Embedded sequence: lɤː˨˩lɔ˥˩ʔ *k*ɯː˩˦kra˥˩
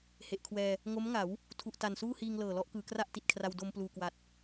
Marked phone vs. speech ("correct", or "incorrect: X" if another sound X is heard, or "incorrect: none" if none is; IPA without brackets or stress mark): correct